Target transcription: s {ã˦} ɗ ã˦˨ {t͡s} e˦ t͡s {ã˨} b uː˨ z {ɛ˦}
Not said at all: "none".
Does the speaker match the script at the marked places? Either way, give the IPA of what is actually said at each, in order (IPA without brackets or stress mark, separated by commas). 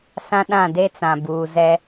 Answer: ã˦, d, ã˨, ɛ˦